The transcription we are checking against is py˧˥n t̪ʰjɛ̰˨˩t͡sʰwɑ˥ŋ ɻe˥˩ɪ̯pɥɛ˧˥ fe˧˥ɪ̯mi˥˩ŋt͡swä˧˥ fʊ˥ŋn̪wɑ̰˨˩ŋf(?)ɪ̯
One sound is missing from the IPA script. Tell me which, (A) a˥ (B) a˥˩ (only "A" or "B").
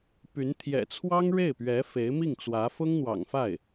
B